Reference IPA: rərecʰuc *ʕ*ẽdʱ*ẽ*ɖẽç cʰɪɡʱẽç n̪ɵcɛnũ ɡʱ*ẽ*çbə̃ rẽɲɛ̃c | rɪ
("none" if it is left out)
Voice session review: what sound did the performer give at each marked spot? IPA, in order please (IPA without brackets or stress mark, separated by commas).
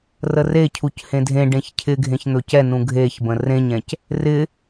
h, ẽ, e